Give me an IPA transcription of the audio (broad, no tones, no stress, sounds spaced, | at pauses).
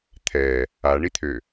t̪ʰ ɛ | a ɳ i t̪ʰ ø